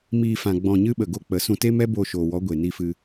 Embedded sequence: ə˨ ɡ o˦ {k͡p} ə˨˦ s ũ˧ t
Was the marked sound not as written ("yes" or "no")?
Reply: no